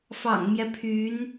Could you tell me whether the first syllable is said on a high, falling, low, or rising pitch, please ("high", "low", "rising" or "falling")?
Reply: low